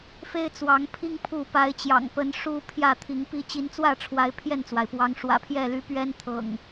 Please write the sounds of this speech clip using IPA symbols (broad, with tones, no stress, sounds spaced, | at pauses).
f e˦ ɪ̯ t͡s w ɑ˨˦ ŋ pʰ i˦ ŋ pʰ u˥˨ p a˨˦ ɪ̯ t͡ɕ j ɑ̰˨˩ ŋ p ə˨˦ n ʂ u˦ pʰ j ä˥˨ t̪ʰ i˨˦ ŋ p i˦ t͡ɕ i˨˦ n t͡s w ä˥˨ ʈ͡ʂʰ w a˨˦ ɪ̯ pʰ j ɛ˥˨ n t͡s w a˩ ɪ̯ p w ɑ˨˦ ŋ ʂ w ä̰˨˩ pʰ j ɛ˥˨ l y˨˦ p ɥ ɛ˦ n t̪ʰ ɤ̰˨˩ ŋ